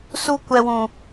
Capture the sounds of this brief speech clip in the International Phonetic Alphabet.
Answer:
su˦ kʷɛ˦wũ˦

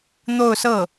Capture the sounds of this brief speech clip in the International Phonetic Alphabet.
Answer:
n̪o˥˧ʊ̯sɤ˥˩

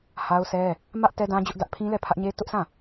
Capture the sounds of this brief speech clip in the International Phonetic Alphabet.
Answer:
ha˦ʊ̯sɛ˦ | mä˦ʔ tɛ˦dã˦d͡ʑʊ˦ʔ dä˦ʔ pʰĩ˦lɛ˦˨pʰä˦ʔɲe˦ tʊ˦ʔsã˦˨

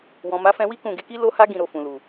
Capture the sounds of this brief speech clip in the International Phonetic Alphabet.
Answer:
wɔ̃˨ ma˨˦fɛ̃˧wi˦ kũ˦˨ ɡe˨˦ki˦ lo˦ha˦ ɡĩ˦˨ɾo˧fũ˨lu˨

